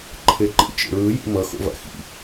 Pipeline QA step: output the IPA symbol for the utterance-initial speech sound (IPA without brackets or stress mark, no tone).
ǃʰ